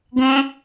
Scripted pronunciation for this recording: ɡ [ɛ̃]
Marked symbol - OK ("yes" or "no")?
no